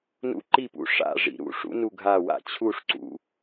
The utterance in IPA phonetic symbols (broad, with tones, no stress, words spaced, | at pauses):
nṵ˧ǃi˧˩pṵ˩ ʂa̰˧˩ ʐḭ˩ɾṵ˧˩ʂṵ˧ nu˧˩ɡʱa˧˩wa̰˧˩ t͡ɕʰu˧˩ʂǀṵ˩